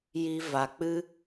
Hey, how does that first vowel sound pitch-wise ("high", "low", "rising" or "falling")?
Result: high